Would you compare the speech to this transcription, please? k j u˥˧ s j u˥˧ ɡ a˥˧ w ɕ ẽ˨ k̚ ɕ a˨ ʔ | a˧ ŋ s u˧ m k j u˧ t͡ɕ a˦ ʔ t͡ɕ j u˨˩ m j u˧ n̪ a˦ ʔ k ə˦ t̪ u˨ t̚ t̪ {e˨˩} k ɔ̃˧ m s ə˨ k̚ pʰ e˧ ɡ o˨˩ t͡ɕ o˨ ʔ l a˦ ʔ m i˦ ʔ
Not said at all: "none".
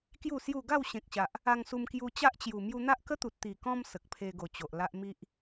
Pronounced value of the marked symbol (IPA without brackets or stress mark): i˨˩